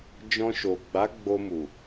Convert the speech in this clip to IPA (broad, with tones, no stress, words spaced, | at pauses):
d͡ʒɔ̃˧ʃo˨ ɡ͡ba˨˦ ɡ͡bo˧mu˨